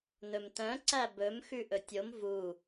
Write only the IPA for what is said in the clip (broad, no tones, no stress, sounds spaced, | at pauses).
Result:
n ɵ m t œ̃ ǀ æ b ɵ m x ʉ ʔ ɵ tʲ o m v u